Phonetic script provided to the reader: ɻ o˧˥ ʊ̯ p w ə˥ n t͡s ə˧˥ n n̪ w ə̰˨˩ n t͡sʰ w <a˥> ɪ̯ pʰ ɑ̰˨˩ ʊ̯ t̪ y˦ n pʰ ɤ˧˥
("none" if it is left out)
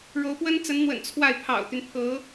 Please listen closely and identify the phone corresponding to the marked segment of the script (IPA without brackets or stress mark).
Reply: a˥˩